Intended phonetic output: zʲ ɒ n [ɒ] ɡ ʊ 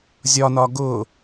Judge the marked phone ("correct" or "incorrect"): correct